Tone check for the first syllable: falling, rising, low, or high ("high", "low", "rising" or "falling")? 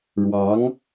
rising